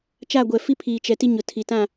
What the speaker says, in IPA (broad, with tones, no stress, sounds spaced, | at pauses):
t͡ʃ aː˦˨ ɡʷ ɛ˨ f i˦ pʰ iː˨ t͡ʃ ɛ˨ t i˦ ɲ ʊ˨ tʰ i˨ t ã˦˨